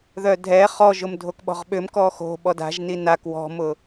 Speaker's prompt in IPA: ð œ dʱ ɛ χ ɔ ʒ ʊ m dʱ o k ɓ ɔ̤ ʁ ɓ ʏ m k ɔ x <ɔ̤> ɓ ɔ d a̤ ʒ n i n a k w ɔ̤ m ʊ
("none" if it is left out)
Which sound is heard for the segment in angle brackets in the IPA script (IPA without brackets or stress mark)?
o̤